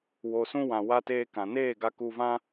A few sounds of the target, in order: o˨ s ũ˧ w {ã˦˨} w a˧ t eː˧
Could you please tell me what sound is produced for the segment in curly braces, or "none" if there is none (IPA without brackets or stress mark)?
ã˨